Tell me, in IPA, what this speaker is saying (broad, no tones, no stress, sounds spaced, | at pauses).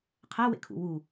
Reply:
qʰ æ w ḛ kʰ ṵ w u